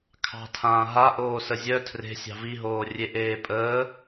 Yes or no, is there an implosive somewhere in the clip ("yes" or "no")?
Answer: no